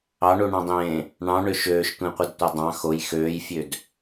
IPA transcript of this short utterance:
ɑ ɳ u ɳ ɑ̃ dˤ ẽː | ɳ ɑ̃ ɳ ø ʃ øː ʃ tʷ ẽ qʷ ɯ d tʷ ɑ dˤ ɑ̃ x o j x øː j fʲ ø d

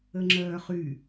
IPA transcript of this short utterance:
ə ŋ͡ǁ œː χ y

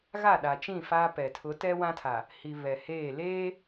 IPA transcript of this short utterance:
ɣ a˦˨ ɗ a˨ t͡ʃ ĩ˦˨ f a˦ p ɛ˨ tʰ ʊ˨˦ t ɛ˦ w ã˦ tʰ a˨ | h i˨ β ɛ˨ h eː˦˨ l eː˦

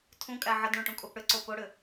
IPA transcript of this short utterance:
tʰ ũ kʼ æ ʕ ə d ɳ ũ ʈ ũ kʼ u p ɽ ʏ ǀ o p o ɽ ʏ

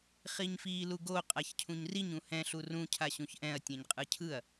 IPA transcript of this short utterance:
χ i ɲ f iː l u ɡ o qʼ a ç cʰ ũ ɲ r i ɲ ũ h ɛ̃ ɬ u r ũ cʰ a ɕ ũ ç ʔ ɛ̃ ɐ̯ tʲ ɛ̃ ɲ qʼ ɯ cʰ ɯ ɐ̯

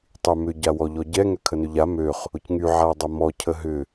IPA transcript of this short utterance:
tˤ y m ʏ ɟ a w ɔ ʎ ɔ ɟ ɛ ŋ ø kʰ ə n ʏ ʎ a m ø χ | ʊ c ŋ y ʕ a dˤ ɐ m ɔ cʰ ə ɦ ʏ

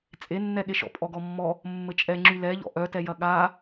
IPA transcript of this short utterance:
t͡sʼ e nː ɛ ɠ e ʃ ɔ̰ pʼ ɔ ɡ ɔ mː ɔ | mː ɘ t͡ʃʼ ɛ ŋ͡ǁ y l ɛ ʎ ɔ̰ ʔ œ t ɛ j ɐ ɠ a

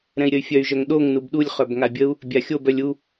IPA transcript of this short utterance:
ɾ ɛ̃ i̯ ɾʲ ə y̯ fʲ œ y̯ ʒ œ ŋ ɗ o ŋ n u b ɗ u lʲ χ œ b ŋ a bʲ ə u̯ | bʲ a xʲ o b œ lʲ u

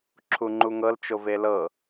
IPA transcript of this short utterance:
ǁʰ u ŋ͡ǃ u ŋ ɤ l t͡ʃ o v e l ɤ

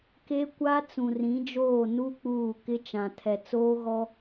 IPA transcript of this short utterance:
k e˦ kʷ a˦ t͡s ũ˨ r ĩ˨˦ d͡ʒ oː˦˨ n u˦ k͡p uː˦˨ k ɪ˦ t͡ʃ ã˨ tʰ ɛ˨ t͡s oː˦ ɣ ɔ˦

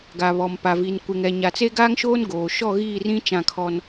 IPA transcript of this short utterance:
ɡ a˨ β ɔ˨ m p a˨ v i˨ n kʷ ɪ˨ ŋ ɛ˨ ɲ a˨ t͡s e˦ ɡ aː˦ ŋ ʃ oː˦ n ɡ oː˨ ʃ ɔ˦˨ ɣ iː˦˨ r ĩ˦ t͡ʃ ã˦˨ kʰ ɔ˦ n

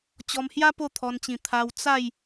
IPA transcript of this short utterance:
t͡ɕ ɔ˧ m h j a˦ p o˥˧ t̪ʰ ɔ˧ n t͡ɕ ĩ˧ t̪ʰ a˧ w t͡s a˥˧ j

